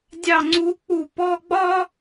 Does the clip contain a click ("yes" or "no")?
yes